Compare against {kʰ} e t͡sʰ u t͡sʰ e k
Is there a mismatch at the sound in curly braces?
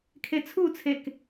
no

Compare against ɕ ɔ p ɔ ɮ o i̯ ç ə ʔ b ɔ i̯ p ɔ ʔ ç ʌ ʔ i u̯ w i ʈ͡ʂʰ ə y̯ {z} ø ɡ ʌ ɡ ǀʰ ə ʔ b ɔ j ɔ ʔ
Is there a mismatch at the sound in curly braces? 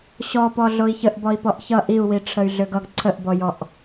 yes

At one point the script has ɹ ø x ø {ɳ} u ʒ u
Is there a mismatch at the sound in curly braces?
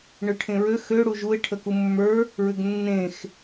yes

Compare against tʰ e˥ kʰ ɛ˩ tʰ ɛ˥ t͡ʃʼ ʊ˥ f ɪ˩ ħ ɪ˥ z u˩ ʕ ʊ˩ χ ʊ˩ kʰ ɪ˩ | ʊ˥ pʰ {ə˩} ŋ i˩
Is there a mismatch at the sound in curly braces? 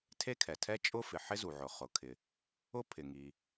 yes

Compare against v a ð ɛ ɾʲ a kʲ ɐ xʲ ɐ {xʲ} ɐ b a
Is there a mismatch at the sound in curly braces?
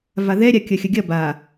yes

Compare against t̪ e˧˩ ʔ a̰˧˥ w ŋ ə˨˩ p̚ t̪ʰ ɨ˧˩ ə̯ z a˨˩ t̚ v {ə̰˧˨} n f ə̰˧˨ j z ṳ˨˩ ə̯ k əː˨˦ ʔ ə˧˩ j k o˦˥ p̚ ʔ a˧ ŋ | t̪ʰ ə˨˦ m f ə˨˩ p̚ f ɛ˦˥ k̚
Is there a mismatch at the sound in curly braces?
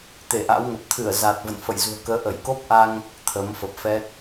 no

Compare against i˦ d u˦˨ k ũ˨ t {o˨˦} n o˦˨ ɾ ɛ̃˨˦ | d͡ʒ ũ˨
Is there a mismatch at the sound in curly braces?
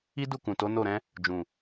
no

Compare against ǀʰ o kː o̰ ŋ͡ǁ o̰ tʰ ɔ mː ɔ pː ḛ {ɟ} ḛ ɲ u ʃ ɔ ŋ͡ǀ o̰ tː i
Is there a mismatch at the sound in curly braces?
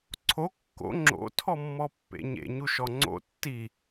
yes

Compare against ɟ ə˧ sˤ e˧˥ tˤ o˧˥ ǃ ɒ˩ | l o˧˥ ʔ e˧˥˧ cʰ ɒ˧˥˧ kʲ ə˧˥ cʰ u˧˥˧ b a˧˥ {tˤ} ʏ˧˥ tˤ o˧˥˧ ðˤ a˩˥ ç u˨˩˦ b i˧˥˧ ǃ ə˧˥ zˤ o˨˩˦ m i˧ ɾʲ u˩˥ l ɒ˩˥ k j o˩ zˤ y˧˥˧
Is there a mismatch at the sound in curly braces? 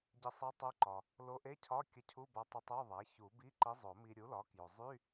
no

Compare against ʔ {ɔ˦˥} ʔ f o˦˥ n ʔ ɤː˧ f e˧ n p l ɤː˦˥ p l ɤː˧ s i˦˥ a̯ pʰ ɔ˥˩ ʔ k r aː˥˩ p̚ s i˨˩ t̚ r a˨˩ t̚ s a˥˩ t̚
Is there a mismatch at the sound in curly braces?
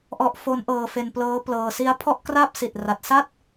no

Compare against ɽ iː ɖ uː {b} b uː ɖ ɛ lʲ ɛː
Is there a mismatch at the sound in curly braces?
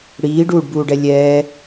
yes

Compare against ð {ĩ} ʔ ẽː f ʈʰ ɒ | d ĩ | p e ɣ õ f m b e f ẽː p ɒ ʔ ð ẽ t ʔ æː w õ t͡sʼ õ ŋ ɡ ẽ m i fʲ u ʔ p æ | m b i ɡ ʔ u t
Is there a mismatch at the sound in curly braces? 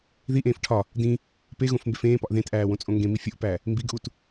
yes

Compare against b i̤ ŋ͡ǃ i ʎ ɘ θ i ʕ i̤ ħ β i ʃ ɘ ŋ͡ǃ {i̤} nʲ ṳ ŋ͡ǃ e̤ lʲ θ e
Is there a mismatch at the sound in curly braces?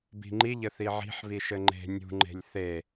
yes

